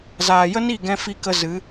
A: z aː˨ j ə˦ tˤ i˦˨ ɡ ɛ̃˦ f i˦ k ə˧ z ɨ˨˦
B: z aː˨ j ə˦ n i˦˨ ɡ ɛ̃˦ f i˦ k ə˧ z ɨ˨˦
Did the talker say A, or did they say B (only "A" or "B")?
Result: B